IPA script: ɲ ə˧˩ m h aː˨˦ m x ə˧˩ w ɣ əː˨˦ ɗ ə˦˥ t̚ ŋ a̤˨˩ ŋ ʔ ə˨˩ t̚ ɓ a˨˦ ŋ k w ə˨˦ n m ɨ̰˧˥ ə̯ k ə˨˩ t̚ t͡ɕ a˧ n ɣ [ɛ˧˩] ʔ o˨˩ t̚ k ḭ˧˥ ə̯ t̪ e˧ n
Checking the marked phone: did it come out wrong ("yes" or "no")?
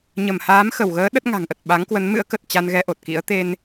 yes